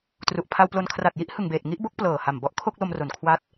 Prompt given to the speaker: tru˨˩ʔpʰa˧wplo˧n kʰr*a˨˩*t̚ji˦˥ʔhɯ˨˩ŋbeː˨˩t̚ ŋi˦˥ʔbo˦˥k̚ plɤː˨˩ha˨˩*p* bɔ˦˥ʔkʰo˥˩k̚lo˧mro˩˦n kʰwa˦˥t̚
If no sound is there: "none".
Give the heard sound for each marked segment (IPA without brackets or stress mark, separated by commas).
a˨˩, m